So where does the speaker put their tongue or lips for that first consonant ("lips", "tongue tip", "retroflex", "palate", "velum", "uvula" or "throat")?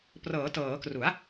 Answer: lips